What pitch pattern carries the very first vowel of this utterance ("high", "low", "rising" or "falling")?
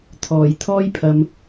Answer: low